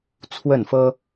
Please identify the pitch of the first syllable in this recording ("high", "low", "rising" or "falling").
falling